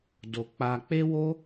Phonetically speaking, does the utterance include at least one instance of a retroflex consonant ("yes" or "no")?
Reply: no